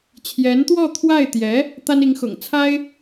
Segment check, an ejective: absent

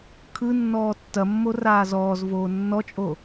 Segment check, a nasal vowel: absent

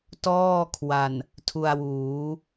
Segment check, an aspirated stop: present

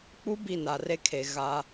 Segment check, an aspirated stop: present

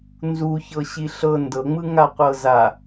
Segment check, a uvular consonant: present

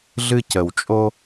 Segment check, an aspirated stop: absent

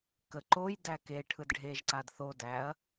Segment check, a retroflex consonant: present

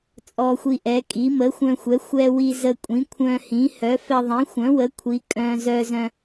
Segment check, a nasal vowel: present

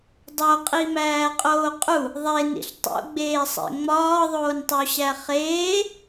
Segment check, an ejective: present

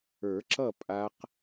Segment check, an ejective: present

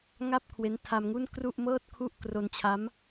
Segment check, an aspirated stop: present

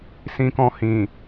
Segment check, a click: absent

